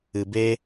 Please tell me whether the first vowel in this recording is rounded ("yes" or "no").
no